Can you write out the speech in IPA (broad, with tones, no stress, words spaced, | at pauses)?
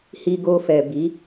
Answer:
hi˧ɡo˧fɛ˨ bi˨˦